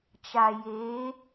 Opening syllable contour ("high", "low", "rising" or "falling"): low